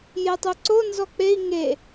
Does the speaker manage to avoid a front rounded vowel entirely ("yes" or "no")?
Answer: no